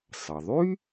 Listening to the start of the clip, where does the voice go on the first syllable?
low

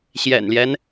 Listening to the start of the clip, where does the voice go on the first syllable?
low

